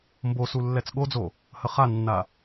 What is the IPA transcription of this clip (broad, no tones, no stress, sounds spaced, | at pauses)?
m b o s u lː ɛ t͡s ɠ o d͡z o | h ə χ a nː a